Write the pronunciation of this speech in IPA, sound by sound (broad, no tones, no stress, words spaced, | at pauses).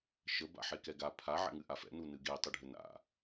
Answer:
ʃə ba̰ħekɛɡa pʰa ʕɛ̰ŋɨʔafɛ̰ nunɨɡe tˤɨɖʱɘna̰